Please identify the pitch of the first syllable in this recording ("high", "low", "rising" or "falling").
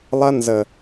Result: high